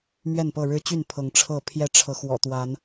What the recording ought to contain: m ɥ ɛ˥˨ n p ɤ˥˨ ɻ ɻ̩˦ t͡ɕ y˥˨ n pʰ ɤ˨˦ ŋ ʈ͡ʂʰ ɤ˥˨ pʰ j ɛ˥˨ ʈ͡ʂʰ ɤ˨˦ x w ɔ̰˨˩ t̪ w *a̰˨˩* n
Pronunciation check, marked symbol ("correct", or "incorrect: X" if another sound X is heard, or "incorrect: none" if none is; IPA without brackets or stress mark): incorrect: a˨˦